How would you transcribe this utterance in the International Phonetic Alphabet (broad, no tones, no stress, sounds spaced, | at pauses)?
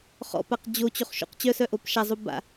χ ɔ̰ p a q d͡ʑ o t͡ɕ o χ ʃ o̰ q t͡ɕ œ s œ ʔ o p ʃ a zˤ u b a̰